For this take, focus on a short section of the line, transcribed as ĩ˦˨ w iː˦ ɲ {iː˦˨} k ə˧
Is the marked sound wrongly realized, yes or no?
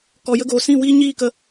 no